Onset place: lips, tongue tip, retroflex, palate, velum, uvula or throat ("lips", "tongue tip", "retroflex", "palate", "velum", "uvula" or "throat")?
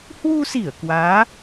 throat